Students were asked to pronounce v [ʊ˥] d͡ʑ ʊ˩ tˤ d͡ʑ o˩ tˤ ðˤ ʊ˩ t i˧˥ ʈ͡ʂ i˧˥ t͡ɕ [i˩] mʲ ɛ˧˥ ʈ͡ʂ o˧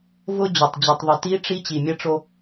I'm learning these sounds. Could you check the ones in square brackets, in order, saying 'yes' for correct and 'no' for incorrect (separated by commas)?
no, yes